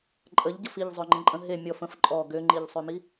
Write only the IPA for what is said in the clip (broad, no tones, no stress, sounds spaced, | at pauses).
ǃʼ ə ʎ ɟ ə f i ʎ zˤ ø ŋ͡ǃ ə̃ ǃʼ ə̃ ɦ e mʲ ɔ f ə̃ f ǃʼ ɔ ɡ ø ŋ͡ǃ i ʎ sˤ ø m i